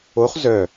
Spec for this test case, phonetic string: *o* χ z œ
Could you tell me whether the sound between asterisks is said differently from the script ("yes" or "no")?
no